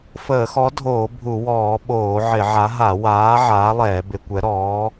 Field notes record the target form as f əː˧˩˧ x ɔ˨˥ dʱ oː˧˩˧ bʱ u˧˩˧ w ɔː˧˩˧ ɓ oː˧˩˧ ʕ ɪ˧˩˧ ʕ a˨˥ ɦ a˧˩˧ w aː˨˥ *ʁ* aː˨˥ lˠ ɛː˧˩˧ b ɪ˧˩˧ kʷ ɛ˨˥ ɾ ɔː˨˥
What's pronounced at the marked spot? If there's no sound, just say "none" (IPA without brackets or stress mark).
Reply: ʕ